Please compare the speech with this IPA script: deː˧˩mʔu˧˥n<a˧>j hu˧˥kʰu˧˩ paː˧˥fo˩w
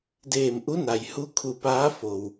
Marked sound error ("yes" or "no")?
yes